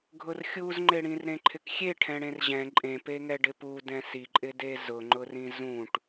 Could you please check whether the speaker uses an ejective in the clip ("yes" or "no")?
yes